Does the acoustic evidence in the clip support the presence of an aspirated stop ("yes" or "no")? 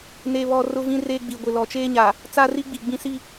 no